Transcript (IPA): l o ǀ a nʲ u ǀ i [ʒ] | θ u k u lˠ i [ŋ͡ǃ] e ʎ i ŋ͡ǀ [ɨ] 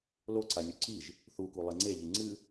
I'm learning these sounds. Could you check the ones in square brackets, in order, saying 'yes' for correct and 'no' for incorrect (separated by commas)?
yes, no, yes